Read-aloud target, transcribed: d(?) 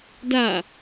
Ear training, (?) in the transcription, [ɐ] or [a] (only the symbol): a